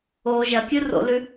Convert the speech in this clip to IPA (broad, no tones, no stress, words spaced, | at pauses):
o ʒɐkʲɨro̰lʉ